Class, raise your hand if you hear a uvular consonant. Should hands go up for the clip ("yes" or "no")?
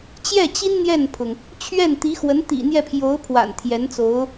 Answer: no